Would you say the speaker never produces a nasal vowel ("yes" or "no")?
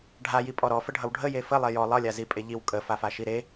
yes